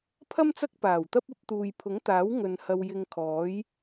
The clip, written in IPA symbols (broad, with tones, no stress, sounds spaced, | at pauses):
pʰ ɐ˥ m t͡s ɐ˥ k̚ p aː˨˩ w t̪ ɐ˥ p̚ ɐ˨˥ p̚ t̪ uː˨ j pʰ ʊ˨˥ ŋ t̪ aː˨˥ w ŋ ɵ˨ n h ɐ˧ w j ɪ˧ ŋ kʰ ɔː˨˥ j